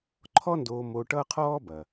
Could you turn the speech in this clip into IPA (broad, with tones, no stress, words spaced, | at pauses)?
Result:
ǃʰɔ˦ndoː˨ mo˨ ʈʌ˦qʰɔː˦bɐ˩